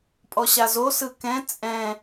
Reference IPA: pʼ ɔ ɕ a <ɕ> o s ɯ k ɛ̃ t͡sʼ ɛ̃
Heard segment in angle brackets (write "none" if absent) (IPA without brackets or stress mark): z